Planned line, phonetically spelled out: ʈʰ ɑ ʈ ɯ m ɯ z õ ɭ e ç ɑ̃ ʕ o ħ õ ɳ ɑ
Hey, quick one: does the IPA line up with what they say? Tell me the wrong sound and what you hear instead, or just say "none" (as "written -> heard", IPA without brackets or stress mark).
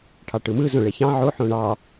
none